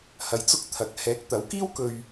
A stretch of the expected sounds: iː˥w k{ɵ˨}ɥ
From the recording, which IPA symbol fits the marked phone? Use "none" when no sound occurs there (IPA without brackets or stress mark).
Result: ɵ˧